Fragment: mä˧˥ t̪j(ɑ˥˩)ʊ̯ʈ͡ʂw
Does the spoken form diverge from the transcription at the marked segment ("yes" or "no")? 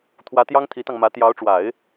yes